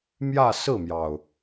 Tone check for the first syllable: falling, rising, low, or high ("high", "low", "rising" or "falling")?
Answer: falling